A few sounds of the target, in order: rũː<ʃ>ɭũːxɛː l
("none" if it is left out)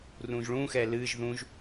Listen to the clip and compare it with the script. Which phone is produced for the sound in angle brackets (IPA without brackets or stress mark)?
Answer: ʒ